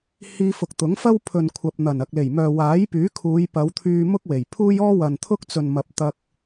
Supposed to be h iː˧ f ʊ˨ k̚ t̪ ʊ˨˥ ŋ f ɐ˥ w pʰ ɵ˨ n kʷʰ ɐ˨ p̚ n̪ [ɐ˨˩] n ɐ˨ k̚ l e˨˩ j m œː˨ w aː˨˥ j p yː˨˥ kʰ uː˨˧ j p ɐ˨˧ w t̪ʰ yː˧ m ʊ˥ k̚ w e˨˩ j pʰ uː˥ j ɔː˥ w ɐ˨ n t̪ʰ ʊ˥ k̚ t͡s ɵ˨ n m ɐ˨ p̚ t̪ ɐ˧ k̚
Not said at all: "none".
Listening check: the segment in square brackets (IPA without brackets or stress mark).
ɐ˨˩